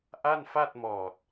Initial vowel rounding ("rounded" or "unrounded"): unrounded